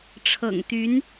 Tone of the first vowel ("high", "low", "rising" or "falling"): low